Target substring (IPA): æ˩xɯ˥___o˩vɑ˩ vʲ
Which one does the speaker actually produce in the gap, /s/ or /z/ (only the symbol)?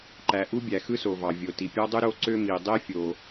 s